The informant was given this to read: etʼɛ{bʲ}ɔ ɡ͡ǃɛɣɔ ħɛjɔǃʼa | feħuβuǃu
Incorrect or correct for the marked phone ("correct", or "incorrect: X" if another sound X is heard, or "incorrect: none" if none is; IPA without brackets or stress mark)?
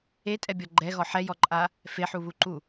correct